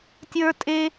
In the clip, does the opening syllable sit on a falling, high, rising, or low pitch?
high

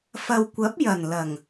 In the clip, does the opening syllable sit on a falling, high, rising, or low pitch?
low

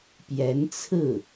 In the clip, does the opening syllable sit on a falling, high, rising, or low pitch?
rising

